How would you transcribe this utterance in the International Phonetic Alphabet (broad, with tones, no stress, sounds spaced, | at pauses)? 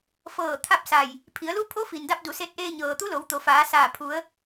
f ɤː˧˩ t̪ʰ a˥˨ p̚ s a˧˩ j | pʰ i˩˧ ə̯ l u˧˥ pʰ o˧˥ f i˩ n d a˧ p̚ d u˩˧ s e˧ t̚ ʔ eː˧ ɲ ɤː˩ t̪ u˧˥ l o˩˧ w t̪ o˩˧ f aː˩˧ s aː˧˩ pʰ u˩˧ ə̯